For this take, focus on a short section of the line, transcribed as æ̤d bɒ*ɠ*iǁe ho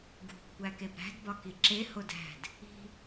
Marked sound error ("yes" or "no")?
yes